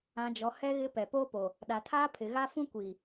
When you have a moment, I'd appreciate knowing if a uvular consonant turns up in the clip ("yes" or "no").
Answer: no